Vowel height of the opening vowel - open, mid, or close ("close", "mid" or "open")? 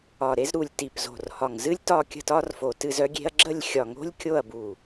open